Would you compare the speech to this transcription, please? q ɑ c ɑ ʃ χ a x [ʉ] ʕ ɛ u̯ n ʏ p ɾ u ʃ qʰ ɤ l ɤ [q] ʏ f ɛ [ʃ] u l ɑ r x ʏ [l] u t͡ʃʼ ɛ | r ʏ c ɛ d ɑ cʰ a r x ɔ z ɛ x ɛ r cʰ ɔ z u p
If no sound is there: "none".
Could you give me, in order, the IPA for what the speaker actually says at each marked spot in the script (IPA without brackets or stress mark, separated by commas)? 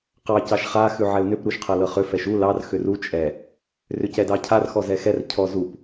ʉ, χ, ʃ, r